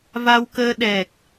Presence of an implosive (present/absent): present